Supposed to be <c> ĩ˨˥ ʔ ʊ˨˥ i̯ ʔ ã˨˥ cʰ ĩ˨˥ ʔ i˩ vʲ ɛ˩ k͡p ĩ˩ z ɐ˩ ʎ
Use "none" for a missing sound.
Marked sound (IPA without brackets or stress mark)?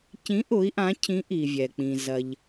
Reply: c